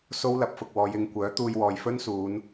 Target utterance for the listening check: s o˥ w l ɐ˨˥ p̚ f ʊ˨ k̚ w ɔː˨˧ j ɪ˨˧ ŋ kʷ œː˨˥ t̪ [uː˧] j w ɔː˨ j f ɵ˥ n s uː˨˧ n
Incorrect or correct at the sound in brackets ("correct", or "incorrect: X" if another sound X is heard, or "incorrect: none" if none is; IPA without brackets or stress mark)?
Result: correct